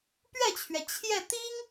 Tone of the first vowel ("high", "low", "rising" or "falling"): falling